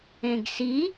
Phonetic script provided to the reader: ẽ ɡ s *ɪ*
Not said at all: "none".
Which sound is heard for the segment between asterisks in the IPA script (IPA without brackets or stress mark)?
i